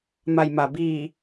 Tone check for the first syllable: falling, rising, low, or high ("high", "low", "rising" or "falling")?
low